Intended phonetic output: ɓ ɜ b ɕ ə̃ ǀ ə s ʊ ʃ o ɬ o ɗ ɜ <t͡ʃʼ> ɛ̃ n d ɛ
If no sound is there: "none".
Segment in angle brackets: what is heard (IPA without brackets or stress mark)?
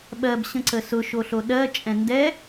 t͡ʃʼ